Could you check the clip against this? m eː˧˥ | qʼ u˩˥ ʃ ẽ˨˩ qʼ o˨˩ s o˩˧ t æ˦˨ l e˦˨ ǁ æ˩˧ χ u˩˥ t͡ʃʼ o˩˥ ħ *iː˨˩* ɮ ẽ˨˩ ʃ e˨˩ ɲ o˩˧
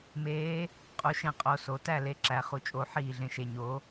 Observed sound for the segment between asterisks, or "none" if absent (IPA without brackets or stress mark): iː˨˩